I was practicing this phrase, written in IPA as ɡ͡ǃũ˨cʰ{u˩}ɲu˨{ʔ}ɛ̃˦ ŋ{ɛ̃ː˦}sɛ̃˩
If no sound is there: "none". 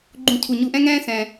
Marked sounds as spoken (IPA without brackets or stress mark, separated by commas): u˩, ʔ, ɛ̃ː˦